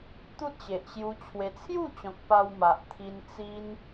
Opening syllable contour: high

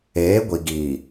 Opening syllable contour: rising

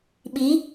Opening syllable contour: rising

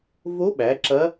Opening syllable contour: rising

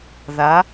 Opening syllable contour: rising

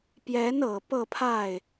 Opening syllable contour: rising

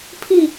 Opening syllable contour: falling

